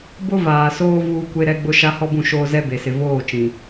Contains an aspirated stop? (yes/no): no